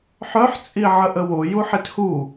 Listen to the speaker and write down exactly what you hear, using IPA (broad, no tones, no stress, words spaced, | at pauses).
ħœħt͡sʼi ʕəʔəwo juħithu